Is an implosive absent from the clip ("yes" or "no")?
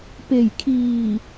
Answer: yes